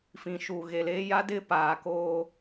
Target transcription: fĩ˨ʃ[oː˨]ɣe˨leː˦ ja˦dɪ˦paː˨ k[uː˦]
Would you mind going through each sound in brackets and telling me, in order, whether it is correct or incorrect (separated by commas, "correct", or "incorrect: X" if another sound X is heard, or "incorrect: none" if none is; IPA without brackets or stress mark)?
incorrect: uː˨, incorrect: oː˦